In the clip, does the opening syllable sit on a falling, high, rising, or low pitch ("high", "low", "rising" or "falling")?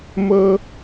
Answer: high